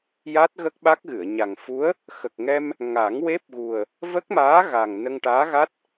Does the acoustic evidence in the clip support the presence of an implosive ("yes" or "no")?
yes